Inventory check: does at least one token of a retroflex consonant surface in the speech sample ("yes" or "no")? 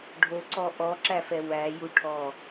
yes